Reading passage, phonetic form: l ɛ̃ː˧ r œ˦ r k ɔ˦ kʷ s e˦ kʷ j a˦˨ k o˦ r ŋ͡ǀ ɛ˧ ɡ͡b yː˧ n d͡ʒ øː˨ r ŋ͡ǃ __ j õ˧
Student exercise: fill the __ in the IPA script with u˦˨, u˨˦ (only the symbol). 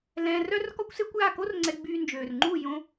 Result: u˦˨